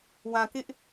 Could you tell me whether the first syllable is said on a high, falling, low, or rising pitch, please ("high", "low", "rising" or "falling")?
low